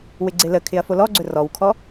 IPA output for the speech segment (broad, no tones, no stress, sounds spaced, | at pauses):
w ɪ ɡ͡ǀ ɪ l ə kʰ ɪ ɐ̯ f o l ɔ ɡ͡ǀ ɵ r ɔ w kʰ ɔ